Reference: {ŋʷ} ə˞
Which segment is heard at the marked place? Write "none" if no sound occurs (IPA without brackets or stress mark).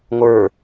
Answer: ŋʷ